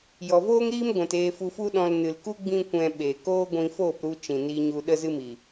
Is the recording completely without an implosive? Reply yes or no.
no